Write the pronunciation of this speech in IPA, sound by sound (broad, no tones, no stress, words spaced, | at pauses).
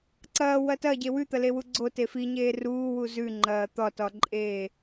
ǀɐːwɐ tɐɟe wʉt̪ɐlewu ɡ͡ǀote fiɲeː ruːwu zʉŋ͡ǃɐː t̪ɒtɒǃʼeː